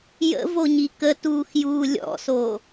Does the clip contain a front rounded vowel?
no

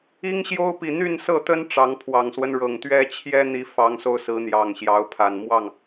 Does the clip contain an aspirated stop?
yes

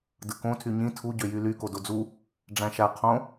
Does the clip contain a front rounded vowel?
yes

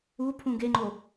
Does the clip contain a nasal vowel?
yes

